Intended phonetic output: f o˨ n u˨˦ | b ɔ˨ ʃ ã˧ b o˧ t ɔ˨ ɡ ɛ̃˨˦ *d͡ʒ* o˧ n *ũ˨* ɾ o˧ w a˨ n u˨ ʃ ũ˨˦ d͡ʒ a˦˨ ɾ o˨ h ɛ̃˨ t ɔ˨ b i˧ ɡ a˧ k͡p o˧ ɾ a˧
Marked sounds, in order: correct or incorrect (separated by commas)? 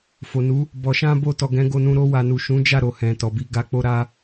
incorrect, incorrect